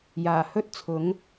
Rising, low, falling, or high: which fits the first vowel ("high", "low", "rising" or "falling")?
low